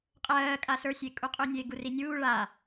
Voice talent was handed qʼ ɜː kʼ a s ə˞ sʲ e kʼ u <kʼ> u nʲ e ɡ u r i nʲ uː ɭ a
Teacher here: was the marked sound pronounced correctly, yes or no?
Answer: no